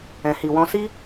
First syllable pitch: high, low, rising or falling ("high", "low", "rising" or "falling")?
low